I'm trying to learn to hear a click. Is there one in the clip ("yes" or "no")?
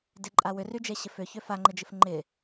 yes